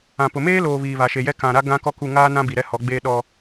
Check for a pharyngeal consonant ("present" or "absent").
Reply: absent